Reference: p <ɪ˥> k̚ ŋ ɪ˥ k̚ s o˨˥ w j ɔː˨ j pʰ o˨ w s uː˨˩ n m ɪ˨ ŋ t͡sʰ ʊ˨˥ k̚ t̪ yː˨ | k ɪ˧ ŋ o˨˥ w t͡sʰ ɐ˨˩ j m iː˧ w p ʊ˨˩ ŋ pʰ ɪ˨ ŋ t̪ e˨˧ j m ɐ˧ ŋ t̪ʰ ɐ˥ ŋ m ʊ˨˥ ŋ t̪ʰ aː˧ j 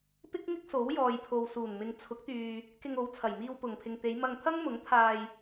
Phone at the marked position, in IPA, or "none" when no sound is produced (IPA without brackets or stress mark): ɪ˥